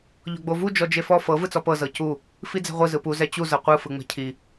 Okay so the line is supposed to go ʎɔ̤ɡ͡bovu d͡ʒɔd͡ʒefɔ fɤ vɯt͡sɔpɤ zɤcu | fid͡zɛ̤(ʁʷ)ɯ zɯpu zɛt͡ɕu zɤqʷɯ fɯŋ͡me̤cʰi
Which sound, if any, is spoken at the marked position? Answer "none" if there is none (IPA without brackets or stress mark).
ʁʷ